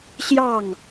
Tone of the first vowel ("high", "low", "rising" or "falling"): falling